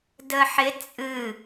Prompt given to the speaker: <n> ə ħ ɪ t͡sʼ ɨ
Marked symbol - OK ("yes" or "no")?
no